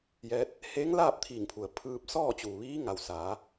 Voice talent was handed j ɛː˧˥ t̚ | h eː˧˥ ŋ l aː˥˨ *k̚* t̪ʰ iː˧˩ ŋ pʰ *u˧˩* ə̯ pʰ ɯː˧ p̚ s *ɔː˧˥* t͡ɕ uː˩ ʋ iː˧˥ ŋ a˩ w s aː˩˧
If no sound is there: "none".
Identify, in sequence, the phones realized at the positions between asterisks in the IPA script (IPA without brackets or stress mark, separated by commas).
p̚, u˩, ɔː˥˨